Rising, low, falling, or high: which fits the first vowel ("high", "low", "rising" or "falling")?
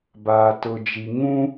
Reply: low